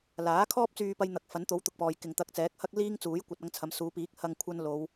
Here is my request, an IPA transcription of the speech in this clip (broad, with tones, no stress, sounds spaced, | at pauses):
l aː˨˥ kʰ ɔː˥ p̚ t͡s yː˧ p ɐ˥ j n̪ ɐ˧ k̚ f ɐ˨˥ n t̪ o˨˥ w t̪ ʊ˨ k̚ p ɔː˨ j k ɪ˨ ŋ t̪ ɐ˧ k̚ t͡s ɛː˨˥ k̚ h ɐ˥ k̚ l iː˥ ŋ t͡s uː˨˥ j kʷ ɐ˨˥ t̚ ɐ˨˥ ŋ t͡sʰ ɐ˨˥ m s uː˨˧ p iː˨˥ k̚ h ɐ˧ ŋ kʷʰ ɐ˧ n l o˨˧ w